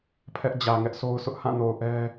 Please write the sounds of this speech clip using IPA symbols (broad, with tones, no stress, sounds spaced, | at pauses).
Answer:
pʰ ɛ˦ ʔ d͡ʑ ä˨ ŋ ɛ˦ ʔ s o˦ ʊ̯ s ʊ˦ ʔ h ã˦˨ n o˨ ʊ̯ ʔ ɛ˦